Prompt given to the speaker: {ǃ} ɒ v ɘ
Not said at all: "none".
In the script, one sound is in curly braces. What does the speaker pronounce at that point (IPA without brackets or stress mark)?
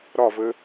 ɾ